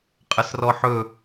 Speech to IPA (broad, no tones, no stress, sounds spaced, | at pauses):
qʼ ɐ s r ɔ ħ ɵ